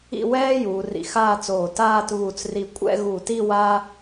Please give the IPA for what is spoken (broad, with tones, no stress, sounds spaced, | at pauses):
ḭ˥˧ w ɛː˥ j uː˩˧ r ḭ˧ x aː˥˧ t͡s oː˧˩ t aː˥˧ t β u˧˩ t͡s r i˧ kʷʼ ɛ̰˥˧ ɣ u˧˩ t i˥˧ w a˥